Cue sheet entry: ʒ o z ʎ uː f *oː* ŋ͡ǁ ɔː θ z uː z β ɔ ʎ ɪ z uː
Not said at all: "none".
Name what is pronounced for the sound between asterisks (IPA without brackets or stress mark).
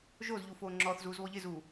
oː